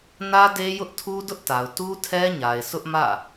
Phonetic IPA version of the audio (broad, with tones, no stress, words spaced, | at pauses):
nä˦de˦jʊ˦ʔ tʰu˦dʊ˦ʔta˨ʊ̯ tu˦tʰɛ˦ɲa˨ɪ̯ sʊ˦ʔmä̰˦˨